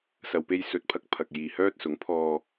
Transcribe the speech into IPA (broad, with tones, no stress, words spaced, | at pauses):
sɐ˨wpe˧j sɵ˨˥t̚pʰɐ˨˥k̚ pʰɐ˨k̚jiː˨hœː˥t̚sʊ˨˥ŋ pʰɔː˧